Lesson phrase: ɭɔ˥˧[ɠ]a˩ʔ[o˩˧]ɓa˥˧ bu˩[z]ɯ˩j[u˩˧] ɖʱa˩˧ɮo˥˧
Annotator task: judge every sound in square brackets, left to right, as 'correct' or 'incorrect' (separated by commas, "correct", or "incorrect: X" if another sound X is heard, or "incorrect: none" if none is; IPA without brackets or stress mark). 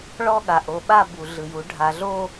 correct, correct, incorrect: ɮ, correct